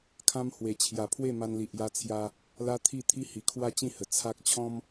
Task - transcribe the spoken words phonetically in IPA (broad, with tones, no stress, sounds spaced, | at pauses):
kʰ ã˧ m h w e˨˩ t͡ɕʰ j a˨˩ pʰ w e˥˧ m a˧ n l i˨ ʔ j a˧ t͡sʰ j a˧ | l a˦ t̪ʰ i˥˧ t̪ʰ i˦ h i˨˩ kʰ w a˥˧ t͡ɕ ĩ˥˧ h ə˨˩ t͡sʰ a˦ k̚ t͡ɕʰ ɔ̃˦ m